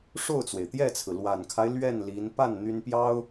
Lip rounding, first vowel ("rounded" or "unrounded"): rounded